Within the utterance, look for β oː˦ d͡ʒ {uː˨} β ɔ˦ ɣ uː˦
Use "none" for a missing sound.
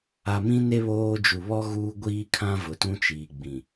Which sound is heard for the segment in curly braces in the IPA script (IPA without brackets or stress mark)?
u˨